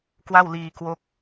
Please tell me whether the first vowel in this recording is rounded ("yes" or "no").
no